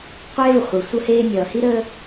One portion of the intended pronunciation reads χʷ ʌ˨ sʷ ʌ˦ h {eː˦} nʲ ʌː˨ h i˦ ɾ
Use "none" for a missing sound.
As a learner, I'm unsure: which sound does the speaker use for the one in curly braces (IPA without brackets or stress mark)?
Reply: eː˦